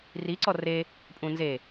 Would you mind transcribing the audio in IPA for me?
ri ǀɔre | pʼũnze

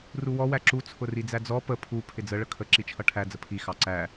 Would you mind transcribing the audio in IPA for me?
ruwɔ wæǁu t͡sʰʊrid͡zæd͡zɔ pə pʰu pʰɪd͡zə ɭəkʰə ǁit͡ʃʰʌʈʰæ d͡zəpʰi xɑǀæ

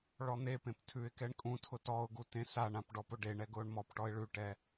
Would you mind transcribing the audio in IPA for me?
ɭɔn̪epẽp tʰʉɪ̯kɛɳ kʼũtʰʊ tɔʊ̯ɡu tẽsaɳãp ɖɔpʊɖeɳɛ ɡʊːɳmɔpʈɔɪ̯ ɭʉʈɛ

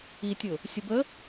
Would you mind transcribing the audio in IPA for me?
itʲʊ | sʲʊbə

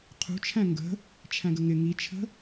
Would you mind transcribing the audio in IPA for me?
qʰṳt͡ʃʰæ̃ ŋɡə̤ | t͡ʃʰæ̃ɡəŋɪ ŋit͡ʃʰə̤

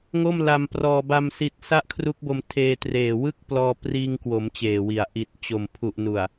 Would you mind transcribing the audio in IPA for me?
ŋo˥˩mla˧m prɔː˧ ba˧m si˦˥t̚ sa˥˩ʔkʰru˦˥k̚bo˧m tʰeː˧treː˨˩ wɯ˥˩k̚plɔː˧priː˧ŋkwo˩˦m t͡ɕeː˨˩wi˨˩a̯ ʔi˨˩t̚ t͡ɕo˨˩mpʰu˨˩ʔ nu˨˩a̯

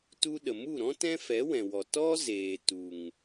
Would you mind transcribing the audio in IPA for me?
tu˧ɗə˨mu˦˨ɾɔ̃˦ tɛ̃˦fɛ˨˦wɛ̃˨wɔ˨ tɔ˦zeː˨ tu˨ŋ

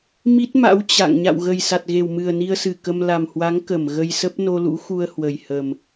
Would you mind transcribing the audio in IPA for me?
mi˦˥t̚ma̰˧˥w t͡ɕa̰˧˨ŋ ɲa̰˧˨wɣə˨˩jsa˨˩t̚ ɣe˨˩wmɨ˨˩ə̯ ni˧ə̯sɨ˧˩ kə˧m la˨˩mhwa˨˦ŋ kə˧˩mɣə˧jsə˦˥p̚ no˧lṵ˧˥ xu˧ə̯ hwə˨˩jhə˨˩m

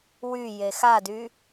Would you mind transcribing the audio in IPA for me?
wyje xady

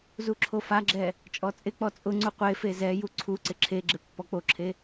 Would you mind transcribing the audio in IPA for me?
zuǁʰofaɡ͡ǁɛ | t͡ʃʼɔt͡sʼɪk͡pɔ t͡sʼʊŋ͡ǀu qʷefe zɛju ǀʰuǀɪ ǁʰeɡ͡ǁɪ pːɔk͡poǁʰe

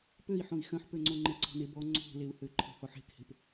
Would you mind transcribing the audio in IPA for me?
pøi̯ħõi̯ xœ̃ħpøŋ͡ǀo ŋ͡ǃeǀɔ̤nebɔ ŋ͡ǀo̤leu̯hø ǃʰe̤hɔħe̤khe̤p

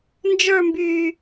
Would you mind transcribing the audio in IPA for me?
nd͡ʒə˞mbyː

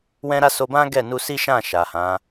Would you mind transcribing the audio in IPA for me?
wɛ̃˦ɾa˦ so˧bã˦ ɡɛ˦˨nu˧si˦ʃã˦˨ ʃa˨hã˨˦

